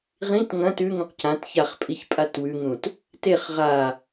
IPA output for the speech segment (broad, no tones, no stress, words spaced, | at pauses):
ʁĩt ŋɐ̃ tʉŋũq cãt çaχpʼiç pʼatwʉŋũt | teχ ʁa